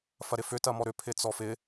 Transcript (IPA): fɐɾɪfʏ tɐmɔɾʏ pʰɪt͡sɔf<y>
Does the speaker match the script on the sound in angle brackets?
no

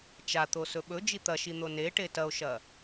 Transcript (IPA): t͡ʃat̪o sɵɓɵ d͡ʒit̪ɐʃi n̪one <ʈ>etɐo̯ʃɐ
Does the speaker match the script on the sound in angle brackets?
yes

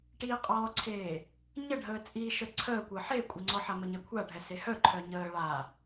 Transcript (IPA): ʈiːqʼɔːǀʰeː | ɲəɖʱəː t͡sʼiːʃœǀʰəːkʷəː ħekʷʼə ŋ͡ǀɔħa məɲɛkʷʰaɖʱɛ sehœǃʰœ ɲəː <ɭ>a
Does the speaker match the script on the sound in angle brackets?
yes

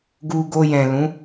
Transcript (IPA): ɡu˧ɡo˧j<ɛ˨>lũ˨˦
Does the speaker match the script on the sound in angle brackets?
no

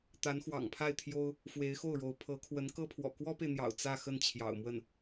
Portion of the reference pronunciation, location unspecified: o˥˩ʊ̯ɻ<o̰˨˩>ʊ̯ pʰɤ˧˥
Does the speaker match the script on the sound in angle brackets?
no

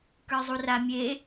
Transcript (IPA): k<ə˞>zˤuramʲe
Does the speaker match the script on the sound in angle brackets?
yes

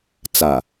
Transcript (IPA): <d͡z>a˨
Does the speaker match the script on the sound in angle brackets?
no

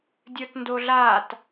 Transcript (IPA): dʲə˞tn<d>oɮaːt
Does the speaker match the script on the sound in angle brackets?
yes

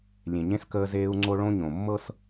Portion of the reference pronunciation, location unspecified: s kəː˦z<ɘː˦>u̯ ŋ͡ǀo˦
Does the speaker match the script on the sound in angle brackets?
no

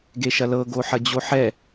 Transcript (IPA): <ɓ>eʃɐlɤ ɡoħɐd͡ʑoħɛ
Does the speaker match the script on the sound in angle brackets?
no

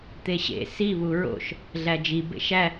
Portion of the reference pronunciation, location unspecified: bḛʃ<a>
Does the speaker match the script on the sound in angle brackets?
no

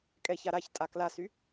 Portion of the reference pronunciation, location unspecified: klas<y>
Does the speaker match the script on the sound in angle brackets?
yes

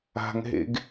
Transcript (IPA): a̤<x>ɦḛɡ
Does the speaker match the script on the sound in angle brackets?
no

